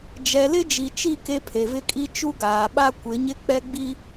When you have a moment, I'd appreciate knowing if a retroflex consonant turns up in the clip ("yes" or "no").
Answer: no